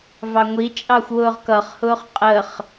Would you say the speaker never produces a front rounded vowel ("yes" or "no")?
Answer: yes